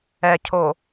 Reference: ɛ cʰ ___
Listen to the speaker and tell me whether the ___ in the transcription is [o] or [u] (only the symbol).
o